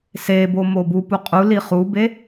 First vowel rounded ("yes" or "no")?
no